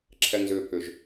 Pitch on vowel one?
low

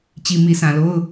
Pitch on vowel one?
low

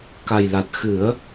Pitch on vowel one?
low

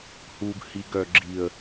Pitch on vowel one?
low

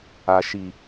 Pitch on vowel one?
low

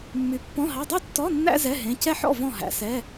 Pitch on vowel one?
rising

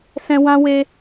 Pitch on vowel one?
high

